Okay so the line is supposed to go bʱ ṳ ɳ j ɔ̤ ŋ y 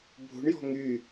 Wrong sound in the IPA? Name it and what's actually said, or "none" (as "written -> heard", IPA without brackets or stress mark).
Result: none